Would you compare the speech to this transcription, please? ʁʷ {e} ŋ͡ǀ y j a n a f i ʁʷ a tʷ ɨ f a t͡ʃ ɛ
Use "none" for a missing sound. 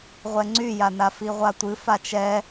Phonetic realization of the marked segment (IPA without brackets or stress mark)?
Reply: ɛ